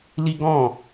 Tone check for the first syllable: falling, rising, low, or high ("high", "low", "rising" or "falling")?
high